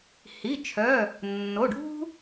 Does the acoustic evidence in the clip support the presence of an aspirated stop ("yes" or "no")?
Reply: yes